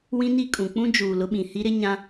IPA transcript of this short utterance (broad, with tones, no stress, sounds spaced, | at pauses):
w ĩ˦ n i˦˨ kʼ ũ˨ k͡p ũ˦ d͡ʒ uː˨ l ʊ˦ ɓ ĩ˨ h i˦ ɾ ɪ˦ ɲ ã˦